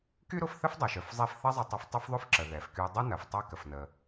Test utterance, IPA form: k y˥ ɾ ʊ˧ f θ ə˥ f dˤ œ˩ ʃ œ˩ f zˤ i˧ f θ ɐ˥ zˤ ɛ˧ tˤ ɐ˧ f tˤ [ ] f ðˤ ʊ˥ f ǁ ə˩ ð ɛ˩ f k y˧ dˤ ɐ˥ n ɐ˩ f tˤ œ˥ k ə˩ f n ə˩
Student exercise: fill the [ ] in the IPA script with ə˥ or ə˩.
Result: ə˥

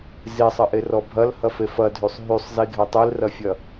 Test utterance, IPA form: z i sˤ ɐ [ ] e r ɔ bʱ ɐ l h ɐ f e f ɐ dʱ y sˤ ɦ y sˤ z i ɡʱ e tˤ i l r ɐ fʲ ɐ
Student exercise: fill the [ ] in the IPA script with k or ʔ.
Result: ʔ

